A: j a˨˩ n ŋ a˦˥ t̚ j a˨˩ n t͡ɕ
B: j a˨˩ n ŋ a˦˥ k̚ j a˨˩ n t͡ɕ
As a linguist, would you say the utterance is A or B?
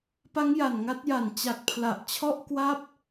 A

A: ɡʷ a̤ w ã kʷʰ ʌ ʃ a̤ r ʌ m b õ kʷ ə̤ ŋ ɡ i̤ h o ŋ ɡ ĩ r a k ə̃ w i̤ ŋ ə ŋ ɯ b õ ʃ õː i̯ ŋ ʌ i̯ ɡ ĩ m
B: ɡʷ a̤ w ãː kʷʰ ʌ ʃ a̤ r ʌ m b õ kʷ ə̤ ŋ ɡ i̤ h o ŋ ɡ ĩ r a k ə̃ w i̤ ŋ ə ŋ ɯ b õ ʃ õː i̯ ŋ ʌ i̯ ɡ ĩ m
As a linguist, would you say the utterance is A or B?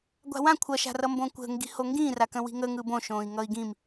A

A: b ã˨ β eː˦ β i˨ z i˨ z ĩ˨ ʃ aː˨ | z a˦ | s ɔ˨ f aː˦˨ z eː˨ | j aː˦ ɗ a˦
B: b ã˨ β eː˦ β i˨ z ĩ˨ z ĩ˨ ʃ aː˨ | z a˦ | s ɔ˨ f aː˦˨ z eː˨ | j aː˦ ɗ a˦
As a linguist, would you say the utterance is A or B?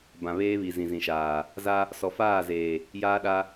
B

